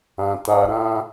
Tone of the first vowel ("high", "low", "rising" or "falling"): low